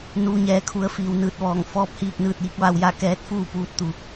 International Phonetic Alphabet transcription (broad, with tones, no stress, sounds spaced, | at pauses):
n uː˩ ɲ ɛː˩ kʰ u˩˧ ə̯ f iː˩ w n ɯː˧˩ t̚ ʋ ɔː˧˩ ŋ f ɔː˧ p̚ h iː˥˨ k̚ n ɯː˥˨ t̚ j i˧˥ k̚ ʋ a˧ w j a˥˨ k ɛː˧˥ t̚ f uː˥˨ p uː˧˥ t̚ t̪ u˩˧